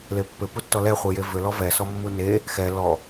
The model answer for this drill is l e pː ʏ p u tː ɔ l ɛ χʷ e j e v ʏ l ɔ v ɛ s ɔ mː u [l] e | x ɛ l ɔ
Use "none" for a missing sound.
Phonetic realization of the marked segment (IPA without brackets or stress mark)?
n